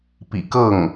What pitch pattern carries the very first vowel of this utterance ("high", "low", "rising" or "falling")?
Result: low